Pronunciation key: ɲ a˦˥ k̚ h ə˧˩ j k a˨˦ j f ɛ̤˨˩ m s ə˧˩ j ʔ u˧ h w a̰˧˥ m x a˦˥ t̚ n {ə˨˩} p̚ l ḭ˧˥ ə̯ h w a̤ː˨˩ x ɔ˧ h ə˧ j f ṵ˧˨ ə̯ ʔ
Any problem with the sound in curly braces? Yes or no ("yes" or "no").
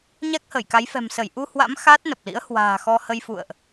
no